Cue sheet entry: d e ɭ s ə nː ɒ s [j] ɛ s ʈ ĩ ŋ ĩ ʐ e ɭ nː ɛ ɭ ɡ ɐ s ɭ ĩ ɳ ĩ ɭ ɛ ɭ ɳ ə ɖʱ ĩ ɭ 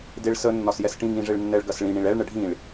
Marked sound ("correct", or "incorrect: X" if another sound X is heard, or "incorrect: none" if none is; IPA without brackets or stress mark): correct